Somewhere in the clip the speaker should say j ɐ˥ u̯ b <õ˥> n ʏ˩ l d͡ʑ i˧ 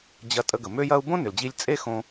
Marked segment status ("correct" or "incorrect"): correct